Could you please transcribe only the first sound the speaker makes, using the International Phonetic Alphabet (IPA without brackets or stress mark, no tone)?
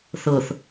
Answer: θ